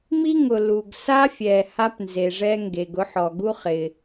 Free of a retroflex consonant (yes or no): no